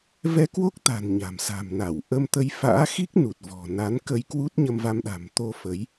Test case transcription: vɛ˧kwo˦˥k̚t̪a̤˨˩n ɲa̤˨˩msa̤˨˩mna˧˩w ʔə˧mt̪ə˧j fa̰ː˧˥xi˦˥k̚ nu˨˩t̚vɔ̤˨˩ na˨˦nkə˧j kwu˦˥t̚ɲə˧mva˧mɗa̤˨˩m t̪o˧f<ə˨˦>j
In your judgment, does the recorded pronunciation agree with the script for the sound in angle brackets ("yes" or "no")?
yes